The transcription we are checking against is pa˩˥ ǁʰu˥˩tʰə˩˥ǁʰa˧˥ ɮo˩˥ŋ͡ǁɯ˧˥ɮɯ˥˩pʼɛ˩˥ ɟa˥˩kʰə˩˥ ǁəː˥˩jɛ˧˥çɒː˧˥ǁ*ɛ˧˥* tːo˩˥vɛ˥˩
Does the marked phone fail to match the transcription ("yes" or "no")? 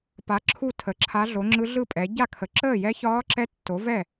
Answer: no